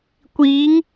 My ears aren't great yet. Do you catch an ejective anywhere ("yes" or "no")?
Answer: no